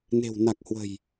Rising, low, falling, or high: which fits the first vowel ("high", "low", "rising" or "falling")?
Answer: low